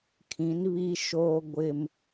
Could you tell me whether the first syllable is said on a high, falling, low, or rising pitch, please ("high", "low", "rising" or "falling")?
rising